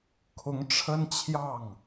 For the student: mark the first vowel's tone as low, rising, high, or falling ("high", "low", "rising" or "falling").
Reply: rising